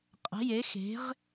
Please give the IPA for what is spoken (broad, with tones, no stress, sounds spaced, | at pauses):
qʼ ə̤˨˦ j e˨˦ x e̤˨˦ ʁ